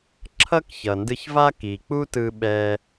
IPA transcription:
ǁʰ ʌ˥ k ç ʌ˩ n d ɯ˧ ç v a˥ k i˩ k͡p u˥ t ɯ˧ ɓ ɛ˧

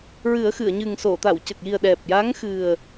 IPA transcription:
ɹ ɨ˨˩˦ ə̯ x ɨ˨˩˨ ə̯ ɲ ɨ˨˩ ŋ s o˨˩˨ t̪ a˨˩˨ w c ə˨˩ k̚ j i˨˩ ə̯ ɗ ɛ˨˩ p̚ j a˧˥ ŋ x ɨ˨˩ ə̯

